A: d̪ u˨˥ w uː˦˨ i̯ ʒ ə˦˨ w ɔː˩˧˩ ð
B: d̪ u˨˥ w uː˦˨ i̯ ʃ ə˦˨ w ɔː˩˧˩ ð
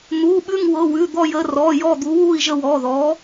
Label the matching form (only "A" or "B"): A